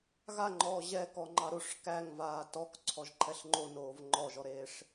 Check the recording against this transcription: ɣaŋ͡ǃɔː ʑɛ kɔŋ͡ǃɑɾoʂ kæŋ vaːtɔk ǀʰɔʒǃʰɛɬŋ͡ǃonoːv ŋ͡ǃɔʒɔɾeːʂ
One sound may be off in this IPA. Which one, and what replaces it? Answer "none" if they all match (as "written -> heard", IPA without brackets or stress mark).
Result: none